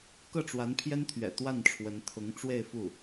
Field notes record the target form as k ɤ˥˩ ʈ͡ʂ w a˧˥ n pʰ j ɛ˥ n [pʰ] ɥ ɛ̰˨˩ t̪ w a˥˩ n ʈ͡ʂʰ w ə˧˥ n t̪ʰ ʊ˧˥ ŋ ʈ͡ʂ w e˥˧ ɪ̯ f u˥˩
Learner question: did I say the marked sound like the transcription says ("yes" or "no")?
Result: no